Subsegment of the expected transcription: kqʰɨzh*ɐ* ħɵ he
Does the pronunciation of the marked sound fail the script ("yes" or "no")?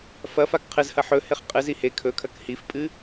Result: no